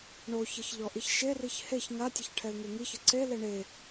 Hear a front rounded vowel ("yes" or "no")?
no